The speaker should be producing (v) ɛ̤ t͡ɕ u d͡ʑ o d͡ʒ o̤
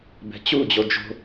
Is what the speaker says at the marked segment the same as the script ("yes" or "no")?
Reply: no